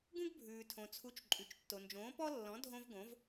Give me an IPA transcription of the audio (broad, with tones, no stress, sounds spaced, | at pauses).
ɡ ũ˥ ɡ bʱ ʉː˩ tʰ õ˩ t͡sʰ u˩˥ t͡ʃ ǃʼ ʉ˩ t͡ʃ tː o˩ n d͡ʒ õː˩˥ p ɔ˥ lː ɔ̃˩˥ dʱ õ˥ v ɡ õ˩˥ v